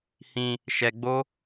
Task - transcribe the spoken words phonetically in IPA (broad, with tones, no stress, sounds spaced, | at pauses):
h ĩ˧ | ʃ ɛ˧ ɡ͡b o˦